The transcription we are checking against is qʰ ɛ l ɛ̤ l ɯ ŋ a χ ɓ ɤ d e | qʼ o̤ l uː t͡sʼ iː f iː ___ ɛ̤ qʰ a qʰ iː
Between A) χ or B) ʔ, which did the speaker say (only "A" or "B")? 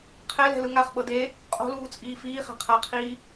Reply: A